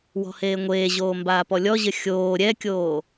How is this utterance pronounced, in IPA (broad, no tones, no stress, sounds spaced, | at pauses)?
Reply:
w ɔ̤ h eː ŋʷ eː ʑ oː m b aː p ɔ lʲ ɔ ʑ ɘ xʲ oː ɾʲ ɛ kʲ oː